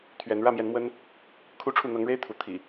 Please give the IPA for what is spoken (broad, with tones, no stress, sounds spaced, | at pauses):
t̪ʰ ɥ ɛ˨˦ n ɻ ä˥˨ m j ɛ˨˦ n m w ə˦ n | kʰ u˥˨ ʈ͡ʂʰ u˥˨ n̪ ɤ˨˦ ŋ ɻ e˦ ɪ̯ t̪ʰ u˨˦ t̪ʰ ḭ˨˩